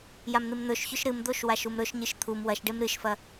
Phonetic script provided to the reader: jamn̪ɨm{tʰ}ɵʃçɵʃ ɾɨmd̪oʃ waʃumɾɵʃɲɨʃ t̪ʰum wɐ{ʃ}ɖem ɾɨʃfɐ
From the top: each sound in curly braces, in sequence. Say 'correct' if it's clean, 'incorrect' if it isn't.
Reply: incorrect: n̪, correct

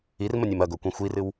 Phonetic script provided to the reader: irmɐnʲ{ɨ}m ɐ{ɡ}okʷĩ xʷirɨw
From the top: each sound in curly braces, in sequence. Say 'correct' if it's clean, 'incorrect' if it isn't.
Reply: incorrect: e, correct

